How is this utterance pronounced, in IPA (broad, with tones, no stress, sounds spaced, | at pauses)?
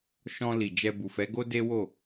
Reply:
ʃ ɔ̃˧ l i˨ d͡ʒ ɛ˧ b u˨ f ɛ˨˦ ɡ o˦ d e˦ w o˦˨